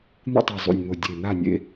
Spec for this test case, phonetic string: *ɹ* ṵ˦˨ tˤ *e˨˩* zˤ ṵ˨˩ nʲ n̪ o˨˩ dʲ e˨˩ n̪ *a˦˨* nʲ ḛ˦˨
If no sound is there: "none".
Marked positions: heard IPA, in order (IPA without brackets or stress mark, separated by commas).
n̪, e˨˩, a˦˨